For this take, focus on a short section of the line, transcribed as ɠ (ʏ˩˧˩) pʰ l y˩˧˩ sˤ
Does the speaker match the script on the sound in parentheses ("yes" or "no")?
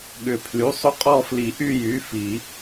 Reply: no